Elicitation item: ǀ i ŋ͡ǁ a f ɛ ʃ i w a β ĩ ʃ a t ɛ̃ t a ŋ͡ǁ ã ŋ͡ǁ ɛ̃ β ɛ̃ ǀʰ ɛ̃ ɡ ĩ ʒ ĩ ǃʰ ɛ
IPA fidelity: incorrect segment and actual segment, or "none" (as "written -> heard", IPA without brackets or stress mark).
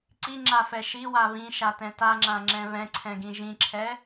ǃʰ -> ǁʰ